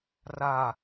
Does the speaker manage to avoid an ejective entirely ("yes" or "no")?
yes